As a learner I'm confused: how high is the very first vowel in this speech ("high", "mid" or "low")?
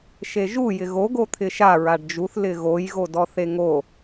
mid